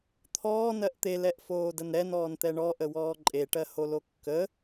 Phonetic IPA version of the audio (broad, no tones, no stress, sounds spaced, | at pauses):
t̪ʰ ɔː n ɜ ʔ t̪ e l ɛ ʔ f oː d ə n ɾ ɛ n ɔː n t̪ ɛ ɳ ɔ ʔ ə w ɔː ǃʼ e ʈ ɜ h o l o kː ə